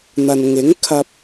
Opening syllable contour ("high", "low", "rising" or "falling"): low